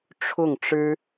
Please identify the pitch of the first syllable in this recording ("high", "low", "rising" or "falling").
falling